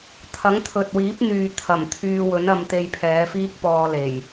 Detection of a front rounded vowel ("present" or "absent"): present